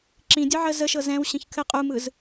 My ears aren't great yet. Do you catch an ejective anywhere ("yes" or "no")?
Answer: yes